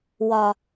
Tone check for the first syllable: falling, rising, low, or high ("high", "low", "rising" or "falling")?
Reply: low